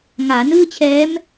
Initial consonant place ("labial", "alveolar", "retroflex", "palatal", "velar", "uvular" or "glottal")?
velar